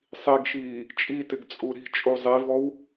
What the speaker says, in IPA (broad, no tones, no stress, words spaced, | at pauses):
sˤiɡʃiː | t͡ʃʼitɪɡ t͡sʼuɾi̤t͡ʃʼu zˤivɔw